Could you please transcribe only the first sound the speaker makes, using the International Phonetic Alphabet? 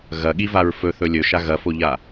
ɣ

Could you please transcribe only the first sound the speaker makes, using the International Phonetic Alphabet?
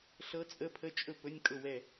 ɬ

